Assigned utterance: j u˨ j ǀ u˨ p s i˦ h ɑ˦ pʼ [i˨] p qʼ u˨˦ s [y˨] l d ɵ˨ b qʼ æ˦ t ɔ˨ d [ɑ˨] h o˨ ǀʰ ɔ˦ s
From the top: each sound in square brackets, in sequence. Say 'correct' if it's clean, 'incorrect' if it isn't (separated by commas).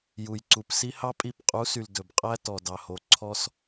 incorrect, correct, correct